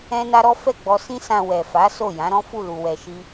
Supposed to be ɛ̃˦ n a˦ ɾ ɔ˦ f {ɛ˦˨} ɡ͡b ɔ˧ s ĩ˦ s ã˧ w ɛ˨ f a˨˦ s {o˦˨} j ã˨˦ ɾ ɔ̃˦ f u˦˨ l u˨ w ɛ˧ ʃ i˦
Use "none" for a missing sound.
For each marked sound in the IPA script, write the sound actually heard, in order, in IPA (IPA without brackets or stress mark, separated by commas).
ɛ˦˨, o˦˨